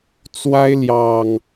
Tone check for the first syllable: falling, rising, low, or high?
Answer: high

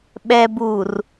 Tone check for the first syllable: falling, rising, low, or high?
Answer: low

